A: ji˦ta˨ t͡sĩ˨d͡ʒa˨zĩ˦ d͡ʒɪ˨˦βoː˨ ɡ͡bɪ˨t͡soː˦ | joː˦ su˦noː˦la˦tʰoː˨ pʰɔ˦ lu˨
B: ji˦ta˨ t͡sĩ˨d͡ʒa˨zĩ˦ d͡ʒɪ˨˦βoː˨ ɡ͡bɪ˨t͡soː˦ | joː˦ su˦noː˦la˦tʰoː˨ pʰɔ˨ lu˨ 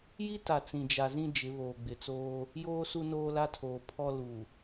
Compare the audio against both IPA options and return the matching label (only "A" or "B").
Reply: A